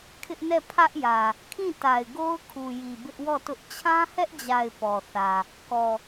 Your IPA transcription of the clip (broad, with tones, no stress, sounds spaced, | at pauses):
kʰ ɪ˦ ʔ n ɛ˦˨ pʰ ä˦ ʔ j ä˨ | kʰ ĩ˦˨ t a˨ ɪ̯ ɡ o˦ ʊ̯ kʰ u˨ j i˨ b ɪ˦ ʔ w ɔ˦˨ t ʊ˦ ʔ t͡ɕʰ ã˦ h ɛ˦ ʔ d͡ʑ a˨ ɪ̯ p ɔ˨ θ ä˨ | k ɔ˨